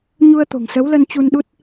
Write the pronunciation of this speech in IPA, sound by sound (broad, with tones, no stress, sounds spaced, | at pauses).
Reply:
ɲ u˧ ə̯ t̪ o̤˨˩ ŋ s ə˨˦ w l ə˧ n t͡ɕ u˧ n ɗ u˦˥ t̚